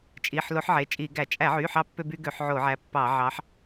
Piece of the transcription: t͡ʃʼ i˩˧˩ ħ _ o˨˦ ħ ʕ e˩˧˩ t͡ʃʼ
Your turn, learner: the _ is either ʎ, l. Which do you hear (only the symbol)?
l